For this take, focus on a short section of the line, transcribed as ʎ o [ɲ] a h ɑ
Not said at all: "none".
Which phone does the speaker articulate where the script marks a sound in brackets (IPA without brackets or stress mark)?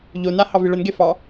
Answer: n